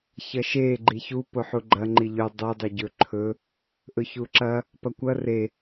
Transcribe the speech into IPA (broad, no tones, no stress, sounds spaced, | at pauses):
ç ɐ ʃ e ɡ͡ǃ i ç u p o ħ u ɡ͡ǃ ɐ ŋ͡ǃ i ʎ ʉ dˤ i dˤ i ɟ ɵ ǃʰ ɵ | ʔ ɵ ç u ǁ ɐ | p ɐ kʷ ɐ r e